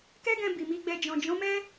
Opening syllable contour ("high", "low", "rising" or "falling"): high